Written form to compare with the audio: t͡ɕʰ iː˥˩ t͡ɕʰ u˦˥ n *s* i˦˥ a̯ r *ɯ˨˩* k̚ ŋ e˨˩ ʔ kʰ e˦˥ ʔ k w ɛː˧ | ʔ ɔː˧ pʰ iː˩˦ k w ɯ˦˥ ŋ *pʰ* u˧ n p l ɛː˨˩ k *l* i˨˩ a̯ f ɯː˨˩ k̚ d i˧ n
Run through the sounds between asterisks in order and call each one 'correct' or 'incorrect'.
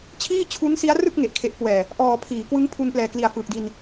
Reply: correct, incorrect: ɯ˥˩, correct, correct

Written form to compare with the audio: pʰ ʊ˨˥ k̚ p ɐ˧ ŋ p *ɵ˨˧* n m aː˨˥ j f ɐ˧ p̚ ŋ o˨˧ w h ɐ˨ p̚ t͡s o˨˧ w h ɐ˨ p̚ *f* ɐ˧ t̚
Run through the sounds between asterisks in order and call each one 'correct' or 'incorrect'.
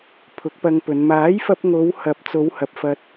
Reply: correct, correct

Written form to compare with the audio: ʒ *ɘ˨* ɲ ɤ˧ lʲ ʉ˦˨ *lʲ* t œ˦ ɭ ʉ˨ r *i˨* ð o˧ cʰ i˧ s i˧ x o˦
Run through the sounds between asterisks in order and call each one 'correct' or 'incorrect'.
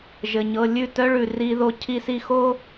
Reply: correct, incorrect: none, incorrect: i˧

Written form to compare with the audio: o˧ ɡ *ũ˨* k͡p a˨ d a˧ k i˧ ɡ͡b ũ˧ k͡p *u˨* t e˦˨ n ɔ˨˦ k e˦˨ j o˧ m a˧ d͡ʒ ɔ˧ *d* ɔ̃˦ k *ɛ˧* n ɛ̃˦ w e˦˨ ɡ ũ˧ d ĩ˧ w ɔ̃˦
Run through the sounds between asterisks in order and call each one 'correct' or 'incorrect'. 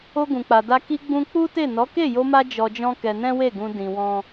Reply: correct, incorrect: u˦, incorrect: d͡ʒ, correct

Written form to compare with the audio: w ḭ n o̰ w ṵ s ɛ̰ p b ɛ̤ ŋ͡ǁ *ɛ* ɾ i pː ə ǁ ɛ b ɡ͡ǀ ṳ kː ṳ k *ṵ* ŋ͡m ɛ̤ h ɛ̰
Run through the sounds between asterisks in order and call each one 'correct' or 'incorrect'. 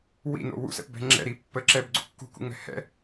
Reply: incorrect: ɛ̰, correct

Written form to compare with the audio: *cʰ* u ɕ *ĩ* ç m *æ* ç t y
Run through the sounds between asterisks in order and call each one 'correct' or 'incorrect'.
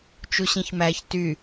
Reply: incorrect: t͡ʃ, correct, correct

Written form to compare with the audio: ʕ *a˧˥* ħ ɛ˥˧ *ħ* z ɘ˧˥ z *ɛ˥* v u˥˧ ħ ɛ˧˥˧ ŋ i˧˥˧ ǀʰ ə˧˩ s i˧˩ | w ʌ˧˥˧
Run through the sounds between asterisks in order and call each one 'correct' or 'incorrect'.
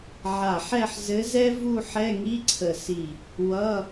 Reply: incorrect: a˧˩, correct, correct

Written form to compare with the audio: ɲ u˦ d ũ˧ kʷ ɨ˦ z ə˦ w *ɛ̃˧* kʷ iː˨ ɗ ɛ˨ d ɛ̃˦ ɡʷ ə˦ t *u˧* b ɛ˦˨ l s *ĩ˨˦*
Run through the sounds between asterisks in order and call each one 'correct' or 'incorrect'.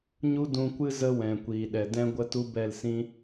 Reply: incorrect: ɛ̃˨, incorrect: u˦, incorrect: ĩ˦

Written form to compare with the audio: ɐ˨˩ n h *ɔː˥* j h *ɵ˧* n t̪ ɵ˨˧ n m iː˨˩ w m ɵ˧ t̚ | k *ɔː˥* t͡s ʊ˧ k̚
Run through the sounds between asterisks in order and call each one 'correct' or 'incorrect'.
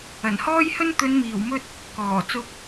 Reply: correct, incorrect: ɵ˥, incorrect: ɔː˨˩

